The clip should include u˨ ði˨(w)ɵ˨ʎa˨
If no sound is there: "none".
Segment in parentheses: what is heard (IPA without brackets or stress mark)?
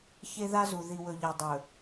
w